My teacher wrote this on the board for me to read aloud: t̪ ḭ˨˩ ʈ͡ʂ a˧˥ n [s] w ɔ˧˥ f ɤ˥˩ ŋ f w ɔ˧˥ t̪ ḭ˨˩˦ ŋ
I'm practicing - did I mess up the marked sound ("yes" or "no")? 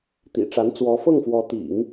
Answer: yes